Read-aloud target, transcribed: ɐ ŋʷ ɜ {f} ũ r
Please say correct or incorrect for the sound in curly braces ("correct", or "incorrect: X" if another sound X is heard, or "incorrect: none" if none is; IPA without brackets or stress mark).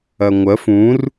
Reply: correct